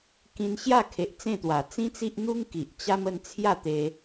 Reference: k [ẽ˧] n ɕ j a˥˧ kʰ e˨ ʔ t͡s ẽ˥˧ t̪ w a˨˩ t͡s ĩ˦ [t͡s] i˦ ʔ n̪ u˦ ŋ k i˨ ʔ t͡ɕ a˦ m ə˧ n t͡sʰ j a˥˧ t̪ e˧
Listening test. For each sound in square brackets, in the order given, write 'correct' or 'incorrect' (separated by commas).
incorrect, correct